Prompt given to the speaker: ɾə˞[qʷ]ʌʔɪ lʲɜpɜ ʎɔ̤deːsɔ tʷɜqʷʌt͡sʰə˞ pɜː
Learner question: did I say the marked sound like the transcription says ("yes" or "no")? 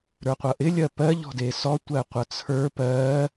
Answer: yes